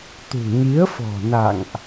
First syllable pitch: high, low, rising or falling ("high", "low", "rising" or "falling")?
low